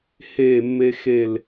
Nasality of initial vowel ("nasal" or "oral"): oral